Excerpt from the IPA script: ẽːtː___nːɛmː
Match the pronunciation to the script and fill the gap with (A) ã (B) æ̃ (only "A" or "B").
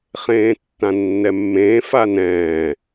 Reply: A